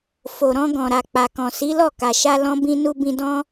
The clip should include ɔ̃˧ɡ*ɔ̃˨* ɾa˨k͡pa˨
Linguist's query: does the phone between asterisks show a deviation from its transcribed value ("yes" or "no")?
no